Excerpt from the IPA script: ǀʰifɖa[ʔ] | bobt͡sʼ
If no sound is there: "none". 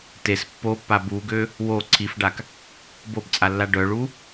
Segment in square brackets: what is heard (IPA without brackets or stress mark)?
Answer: k